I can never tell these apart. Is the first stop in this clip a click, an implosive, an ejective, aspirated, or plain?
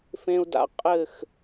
plain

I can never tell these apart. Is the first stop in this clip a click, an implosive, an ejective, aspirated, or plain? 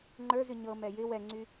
click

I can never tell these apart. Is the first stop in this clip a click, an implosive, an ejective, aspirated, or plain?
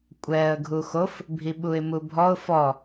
ejective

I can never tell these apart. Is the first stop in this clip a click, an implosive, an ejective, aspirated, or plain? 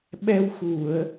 implosive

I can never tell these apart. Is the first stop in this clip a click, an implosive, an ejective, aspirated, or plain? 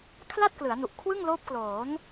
aspirated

